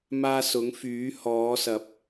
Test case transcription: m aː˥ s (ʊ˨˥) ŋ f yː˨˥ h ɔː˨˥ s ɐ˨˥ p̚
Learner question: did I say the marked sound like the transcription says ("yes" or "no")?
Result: yes